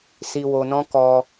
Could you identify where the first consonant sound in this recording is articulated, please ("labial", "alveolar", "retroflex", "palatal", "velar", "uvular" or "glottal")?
alveolar